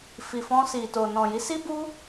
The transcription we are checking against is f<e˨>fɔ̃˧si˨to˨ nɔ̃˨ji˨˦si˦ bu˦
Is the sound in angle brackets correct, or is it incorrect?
incorrect